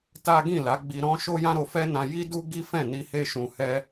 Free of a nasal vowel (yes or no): no